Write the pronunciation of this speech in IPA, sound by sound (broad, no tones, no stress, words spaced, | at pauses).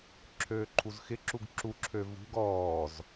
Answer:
ǁʰøːǃʰuzxɪǁuɡ ǁuǁʰø vṳɡ ɔːz